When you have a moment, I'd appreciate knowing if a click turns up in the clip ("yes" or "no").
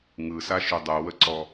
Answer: yes